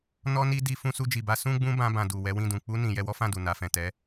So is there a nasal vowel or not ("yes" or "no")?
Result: yes